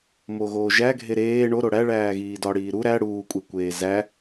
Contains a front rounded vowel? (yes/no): no